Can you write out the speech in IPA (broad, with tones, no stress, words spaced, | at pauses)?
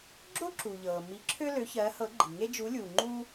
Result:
ɡ͡ǁo˥ǁu˨ʎɤː˨ mi˧˥ǁʰø˥ lø˧˥çɜː˧˥hɤ˧˥ɡ͡ǃi˨ ŋe˥d͡ʒu˧˥lʲuː˨ ŋ͡ǃu˥